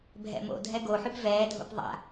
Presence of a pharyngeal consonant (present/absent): present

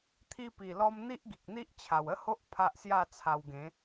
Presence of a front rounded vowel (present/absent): absent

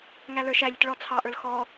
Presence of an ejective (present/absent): absent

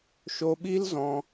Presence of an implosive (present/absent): present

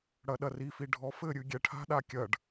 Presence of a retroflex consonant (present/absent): present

